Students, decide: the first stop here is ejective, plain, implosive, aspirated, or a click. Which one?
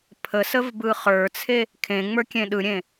aspirated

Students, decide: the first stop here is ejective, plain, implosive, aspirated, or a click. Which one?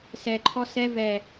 click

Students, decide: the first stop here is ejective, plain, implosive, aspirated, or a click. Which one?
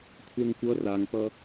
aspirated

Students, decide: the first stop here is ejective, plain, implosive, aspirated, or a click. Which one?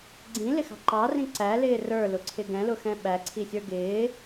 click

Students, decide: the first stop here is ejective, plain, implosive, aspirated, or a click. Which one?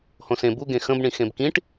plain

